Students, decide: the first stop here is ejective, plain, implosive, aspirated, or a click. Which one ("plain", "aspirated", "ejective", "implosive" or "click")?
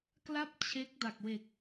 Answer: plain